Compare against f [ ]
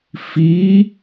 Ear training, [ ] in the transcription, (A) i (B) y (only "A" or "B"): A